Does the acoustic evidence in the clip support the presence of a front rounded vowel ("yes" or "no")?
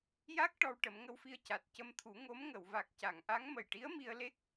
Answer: no